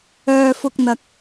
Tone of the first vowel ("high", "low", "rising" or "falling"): low